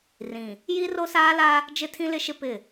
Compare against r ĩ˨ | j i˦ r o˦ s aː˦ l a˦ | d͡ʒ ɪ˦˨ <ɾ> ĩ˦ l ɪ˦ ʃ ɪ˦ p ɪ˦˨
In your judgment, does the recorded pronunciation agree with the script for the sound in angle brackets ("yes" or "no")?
no